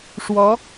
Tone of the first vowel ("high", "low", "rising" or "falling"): rising